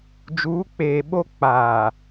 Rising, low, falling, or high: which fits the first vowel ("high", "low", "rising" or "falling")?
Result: rising